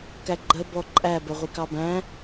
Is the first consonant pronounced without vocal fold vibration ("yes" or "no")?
yes